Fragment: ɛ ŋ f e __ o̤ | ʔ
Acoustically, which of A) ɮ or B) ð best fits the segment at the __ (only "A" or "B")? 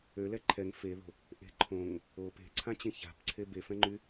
B